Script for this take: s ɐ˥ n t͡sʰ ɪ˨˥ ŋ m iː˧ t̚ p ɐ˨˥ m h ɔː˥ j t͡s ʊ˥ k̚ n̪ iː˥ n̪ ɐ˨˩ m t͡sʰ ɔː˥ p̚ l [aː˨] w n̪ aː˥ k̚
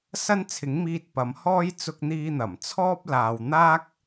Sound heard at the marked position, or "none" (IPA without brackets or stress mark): aː˨